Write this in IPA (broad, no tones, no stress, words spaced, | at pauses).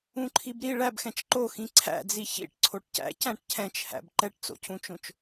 ũǃʰibɾi ɭæbxɛ̃t͡ʃ ǃoxĩ ǀʰæ̰d͡zi çḭʈ ǀʰoʈcæ̰ cæ̃ʈcʰɛ̃t͡ʃhæ̰b ǃɛʈt͡so̰cʰũt͡ʃõt͡ʃ